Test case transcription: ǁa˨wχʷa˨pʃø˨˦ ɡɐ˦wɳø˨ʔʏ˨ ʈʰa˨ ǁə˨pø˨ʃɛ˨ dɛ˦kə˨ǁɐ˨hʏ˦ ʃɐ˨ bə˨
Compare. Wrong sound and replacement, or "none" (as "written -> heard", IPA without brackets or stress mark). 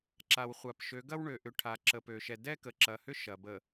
none